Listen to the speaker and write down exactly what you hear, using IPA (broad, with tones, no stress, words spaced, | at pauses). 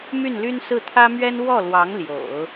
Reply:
my˥˩nly˥nsɹ̩˥˩ t̪ʰä˥mɥɛ˥n wɔ˥˩lwɑ˧˥ŋ ljo̰˨˩˦ʊ̯